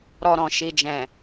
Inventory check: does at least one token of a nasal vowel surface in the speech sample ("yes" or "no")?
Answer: yes